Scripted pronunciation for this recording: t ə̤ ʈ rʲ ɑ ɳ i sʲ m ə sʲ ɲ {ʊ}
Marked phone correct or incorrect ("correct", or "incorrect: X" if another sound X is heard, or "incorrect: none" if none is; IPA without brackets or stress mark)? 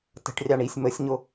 correct